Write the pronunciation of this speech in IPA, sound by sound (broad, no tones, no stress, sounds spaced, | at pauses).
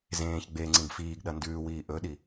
z ẽː ç ɡ͡b e ŋ͡ǀ ĩ ɡ f iː ɡ ɗ ɐ n d ʉː w iː ʔ ɵ ɗ i